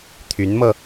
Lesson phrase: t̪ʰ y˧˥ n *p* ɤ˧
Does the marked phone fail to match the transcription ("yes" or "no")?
yes